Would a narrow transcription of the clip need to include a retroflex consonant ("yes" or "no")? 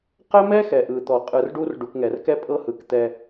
yes